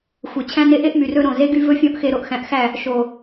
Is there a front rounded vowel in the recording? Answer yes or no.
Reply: yes